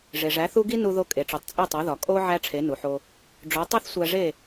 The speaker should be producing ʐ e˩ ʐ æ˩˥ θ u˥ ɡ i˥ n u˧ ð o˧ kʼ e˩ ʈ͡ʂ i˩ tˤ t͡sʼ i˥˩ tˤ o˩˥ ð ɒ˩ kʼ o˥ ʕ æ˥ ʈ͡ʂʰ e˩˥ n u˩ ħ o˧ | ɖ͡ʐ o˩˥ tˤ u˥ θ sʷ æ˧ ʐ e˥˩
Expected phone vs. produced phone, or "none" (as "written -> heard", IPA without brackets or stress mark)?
none